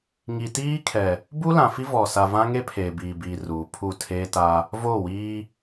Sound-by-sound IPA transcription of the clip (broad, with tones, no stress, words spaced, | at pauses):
ŋi˨tiː˦kʰɛ˨ | bu˦lã˨ fi˦vɔ˨sa˨ vã˦ŋe˦ pʰeː˨biː˨biː˨ ruː˨pʰu˦˨ tʰeː˦ta˦ | voː˦˨wiː˦